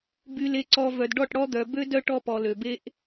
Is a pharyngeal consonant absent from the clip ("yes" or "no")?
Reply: yes